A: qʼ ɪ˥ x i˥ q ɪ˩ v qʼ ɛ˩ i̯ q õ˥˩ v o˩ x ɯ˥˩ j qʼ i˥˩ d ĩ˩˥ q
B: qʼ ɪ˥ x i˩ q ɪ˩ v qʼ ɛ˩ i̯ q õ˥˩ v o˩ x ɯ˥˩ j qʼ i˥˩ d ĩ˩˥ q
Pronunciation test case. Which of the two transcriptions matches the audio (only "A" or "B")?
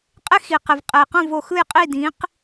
B